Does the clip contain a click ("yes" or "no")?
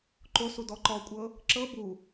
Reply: yes